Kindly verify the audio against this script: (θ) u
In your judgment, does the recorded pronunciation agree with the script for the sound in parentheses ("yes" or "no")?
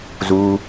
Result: no